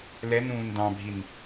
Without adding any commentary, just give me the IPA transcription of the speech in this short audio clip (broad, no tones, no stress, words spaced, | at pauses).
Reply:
lɛn ũːndɑ̃bʱin